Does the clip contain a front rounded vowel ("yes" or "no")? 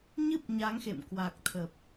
no